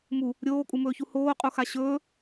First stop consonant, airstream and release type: ejective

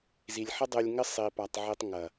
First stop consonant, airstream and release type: plain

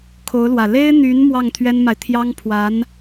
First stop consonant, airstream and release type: aspirated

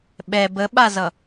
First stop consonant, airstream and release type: implosive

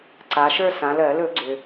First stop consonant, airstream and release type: click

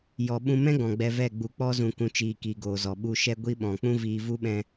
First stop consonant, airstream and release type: implosive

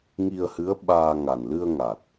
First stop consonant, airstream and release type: implosive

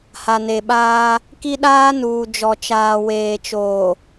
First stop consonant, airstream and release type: implosive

